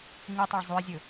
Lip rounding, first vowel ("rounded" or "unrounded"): unrounded